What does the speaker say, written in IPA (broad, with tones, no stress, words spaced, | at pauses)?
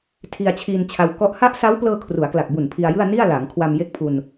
tʰi˧a̯t͡ɕʰiː˧nt͡ɕʰa˧w kɔ˦˥ʔ ha˦˥ʔsa˦˥wplɤː˧ kʰru˩˦a̯kla˨˩k̚bu˨˩n pʰi˧a̯jɯ˥˩a̯ ni˥˩a̯laː˩˦ŋkʰwa˧m je˥˩k̚pʰu˧n